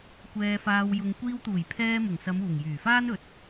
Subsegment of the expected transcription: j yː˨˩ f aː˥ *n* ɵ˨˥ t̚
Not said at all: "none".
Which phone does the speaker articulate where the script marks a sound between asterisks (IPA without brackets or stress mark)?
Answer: n